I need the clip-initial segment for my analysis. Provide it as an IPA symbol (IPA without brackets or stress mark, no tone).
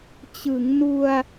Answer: t͡ɕ